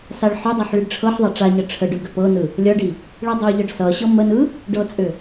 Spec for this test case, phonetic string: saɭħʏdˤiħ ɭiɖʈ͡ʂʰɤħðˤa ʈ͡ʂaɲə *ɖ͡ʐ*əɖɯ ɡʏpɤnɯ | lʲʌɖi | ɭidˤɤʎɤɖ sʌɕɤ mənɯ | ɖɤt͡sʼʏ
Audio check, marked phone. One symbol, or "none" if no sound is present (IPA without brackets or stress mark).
ʈ͡ʂʰ